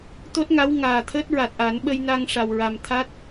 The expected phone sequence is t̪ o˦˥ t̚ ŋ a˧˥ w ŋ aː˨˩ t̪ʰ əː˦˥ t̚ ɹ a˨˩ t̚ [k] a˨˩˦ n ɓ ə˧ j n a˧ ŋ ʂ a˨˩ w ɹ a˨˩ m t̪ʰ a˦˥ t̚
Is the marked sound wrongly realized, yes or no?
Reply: yes